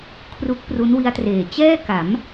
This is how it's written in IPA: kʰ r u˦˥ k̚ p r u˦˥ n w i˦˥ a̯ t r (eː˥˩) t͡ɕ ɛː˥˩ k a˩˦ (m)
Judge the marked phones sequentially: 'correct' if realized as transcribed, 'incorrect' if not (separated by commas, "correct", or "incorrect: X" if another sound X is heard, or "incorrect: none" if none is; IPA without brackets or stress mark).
incorrect: eː˨˩, correct